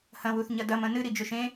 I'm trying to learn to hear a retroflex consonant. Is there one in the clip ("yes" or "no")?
no